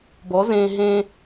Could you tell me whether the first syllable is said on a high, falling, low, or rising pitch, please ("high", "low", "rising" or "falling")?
rising